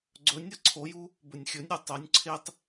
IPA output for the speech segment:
ɡ͡ǀ ɵ nʲ ɐ ǀʰ o j u | b ɵ nʲ xʲ ɵ nʲ ɾʲ u tˤ ɵ nʲ ǀʰ e tˤ

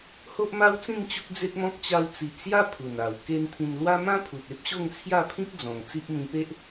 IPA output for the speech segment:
h o˦ ʔ m a˦ w t͡s ĩ˥˧ n t͡ɕ u˦ k̚ d͡z e˦ t̚ m ɔ̃˦ k̚ t͡ɕ a˧ w t͡s i˨ ʔ s j a˦ pʰ u˨˩ n a˨˩ w k e˦ n t̪ʰ ĩ˧ n l w a˦ m ã˦ pʰ u˨ t̚ e˦ p̚ ɕ o˥˧ ŋ t͡sʰ j a˥˧ pʰ ĩ˦ k̚ d͡z ɔ̃˨˩ ŋ t͡s i˦ ʔ m ĩ˧ p e˦ ʔ

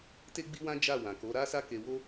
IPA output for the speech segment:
t e˦ ɡ͡b i˦ w ã˦ d͡ʒ a˦˨ w ã˨ k o˨˦ ɾ a˦ s a˦ k e˧ w o˦

